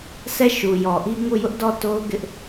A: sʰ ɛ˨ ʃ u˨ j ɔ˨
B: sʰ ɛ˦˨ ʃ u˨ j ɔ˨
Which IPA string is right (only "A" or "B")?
B